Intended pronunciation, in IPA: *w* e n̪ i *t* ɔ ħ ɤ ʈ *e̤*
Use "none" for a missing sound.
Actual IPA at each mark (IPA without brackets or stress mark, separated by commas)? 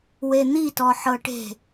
w, t, e̤